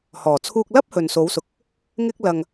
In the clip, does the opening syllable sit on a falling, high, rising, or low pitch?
low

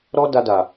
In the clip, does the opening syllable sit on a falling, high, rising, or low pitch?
high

